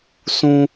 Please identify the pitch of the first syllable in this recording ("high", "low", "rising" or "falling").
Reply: high